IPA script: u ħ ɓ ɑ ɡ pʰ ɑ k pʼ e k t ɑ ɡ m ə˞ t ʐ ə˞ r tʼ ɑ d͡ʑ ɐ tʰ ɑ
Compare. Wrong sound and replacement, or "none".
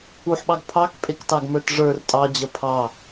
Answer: tʰ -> pʰ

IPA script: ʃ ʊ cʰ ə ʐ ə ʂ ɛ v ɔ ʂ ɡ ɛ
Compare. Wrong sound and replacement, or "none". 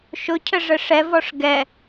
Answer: none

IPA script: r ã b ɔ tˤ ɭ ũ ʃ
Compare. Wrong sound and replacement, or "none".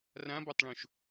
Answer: none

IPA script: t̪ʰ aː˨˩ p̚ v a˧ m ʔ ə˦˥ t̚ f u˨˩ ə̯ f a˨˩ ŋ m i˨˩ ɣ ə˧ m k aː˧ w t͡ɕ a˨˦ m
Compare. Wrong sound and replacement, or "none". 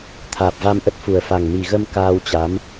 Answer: none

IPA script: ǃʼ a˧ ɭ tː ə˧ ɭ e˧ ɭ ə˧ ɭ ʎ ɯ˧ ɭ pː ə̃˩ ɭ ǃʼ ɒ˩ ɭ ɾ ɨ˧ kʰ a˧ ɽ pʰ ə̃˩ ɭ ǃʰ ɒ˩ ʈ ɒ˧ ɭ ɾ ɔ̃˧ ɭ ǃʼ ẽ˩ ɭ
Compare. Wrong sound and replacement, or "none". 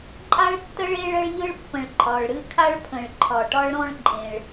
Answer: ɽ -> ɭ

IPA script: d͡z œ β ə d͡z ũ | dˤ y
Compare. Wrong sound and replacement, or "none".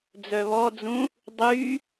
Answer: ə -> ɔ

